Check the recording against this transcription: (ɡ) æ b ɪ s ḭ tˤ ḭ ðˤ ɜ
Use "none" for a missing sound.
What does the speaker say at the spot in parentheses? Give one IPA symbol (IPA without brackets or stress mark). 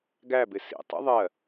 ɡ